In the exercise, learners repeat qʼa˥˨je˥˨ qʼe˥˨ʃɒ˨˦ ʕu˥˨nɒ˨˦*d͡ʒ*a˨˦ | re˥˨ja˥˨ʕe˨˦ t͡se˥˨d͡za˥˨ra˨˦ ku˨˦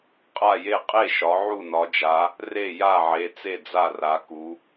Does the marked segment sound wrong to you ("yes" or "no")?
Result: no